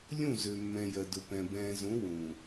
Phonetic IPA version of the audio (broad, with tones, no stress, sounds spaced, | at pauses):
lʲ ũ˦˨ z ø˨ mː ɛ̃˨ j ɜ˨ d ʊ˨ p ɛ̃˨ b ɛ̃ː˨ z ũ˨˦ w ũː˨